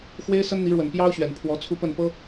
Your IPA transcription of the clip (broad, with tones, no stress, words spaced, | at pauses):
xwe˥ɪ̯sə˥nn̪i˧˥ɻwə˨˩n pjɑ˥ʊ̯ ɕɥɛ˨˩npʰwɔ˧˥t͡sʰu˥ pə˥˩npɤ˥